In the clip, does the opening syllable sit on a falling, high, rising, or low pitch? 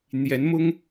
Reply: rising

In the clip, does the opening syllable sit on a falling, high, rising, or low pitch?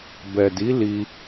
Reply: low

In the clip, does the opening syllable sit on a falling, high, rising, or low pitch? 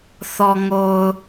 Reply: low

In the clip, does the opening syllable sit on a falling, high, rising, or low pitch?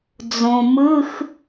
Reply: low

